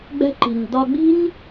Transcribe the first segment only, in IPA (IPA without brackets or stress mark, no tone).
ɡ͡b